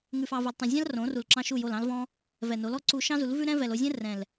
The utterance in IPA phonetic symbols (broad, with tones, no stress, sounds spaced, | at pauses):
ŋ ʉ˧ f ɑ˧ v u˨ l tˤ õ˨ zʲ ɑ̃˦ l r õ˨˦ r u˨ l ǁ ɑ̃˧ ʃ u˦˨ j o˦˨ l ɑ̃˦ l v ɔ̃˦ | v ɛ˨ n o˨˦ l ɔ˧ ǀ u˧ ʃ ɑ̃˦ z u˨˦ l v ʉ˦ ɾ ɛ̃˦ v ɛ˨ l o˧ zʲ ɛ̃˦ r ɛ̃˨ l